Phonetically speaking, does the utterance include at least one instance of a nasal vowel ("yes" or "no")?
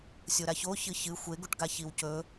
no